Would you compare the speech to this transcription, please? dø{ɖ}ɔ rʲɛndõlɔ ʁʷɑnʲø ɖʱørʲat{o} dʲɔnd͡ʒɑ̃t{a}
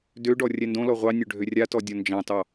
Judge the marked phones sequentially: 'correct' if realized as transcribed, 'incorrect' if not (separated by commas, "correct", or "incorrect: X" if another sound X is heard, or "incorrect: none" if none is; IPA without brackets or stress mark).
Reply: correct, incorrect: ɔ, incorrect: ɑ